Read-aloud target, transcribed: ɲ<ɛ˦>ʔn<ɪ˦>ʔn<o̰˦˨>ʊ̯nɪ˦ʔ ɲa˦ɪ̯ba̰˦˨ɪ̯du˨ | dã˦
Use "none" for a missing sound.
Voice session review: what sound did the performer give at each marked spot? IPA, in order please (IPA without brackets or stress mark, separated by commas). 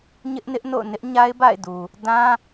ɪ˦, ɪ˦, o̰˦˨